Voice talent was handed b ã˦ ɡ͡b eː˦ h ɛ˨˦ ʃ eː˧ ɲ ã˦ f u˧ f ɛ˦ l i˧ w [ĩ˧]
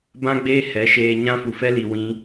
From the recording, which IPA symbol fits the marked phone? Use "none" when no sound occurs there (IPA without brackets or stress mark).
ĩ˦